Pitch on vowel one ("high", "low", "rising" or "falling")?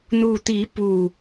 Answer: low